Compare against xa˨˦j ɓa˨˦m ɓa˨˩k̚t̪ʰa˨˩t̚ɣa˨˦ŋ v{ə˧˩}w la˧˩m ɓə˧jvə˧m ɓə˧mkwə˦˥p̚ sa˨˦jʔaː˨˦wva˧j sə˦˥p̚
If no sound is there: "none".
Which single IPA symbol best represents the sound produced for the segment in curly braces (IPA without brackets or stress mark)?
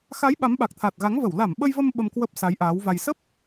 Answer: ə˧˩